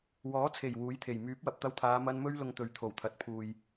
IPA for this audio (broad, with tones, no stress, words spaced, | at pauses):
wɔː˨˥t͡sʰe˨˩j wuː˨˥jt̪ʰe˨˩j myː˨˥p̚wɐ˨p̚t̪ɐ˧wt̪ʰaː˨˧ mɐ˥n mɵ˥ɥlʊ˧ŋ t̪ɵ˨ɥt̪ʰo˨˩wt̪ʰɐ˨t̚ pʰuː˨j